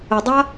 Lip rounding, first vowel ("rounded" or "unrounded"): unrounded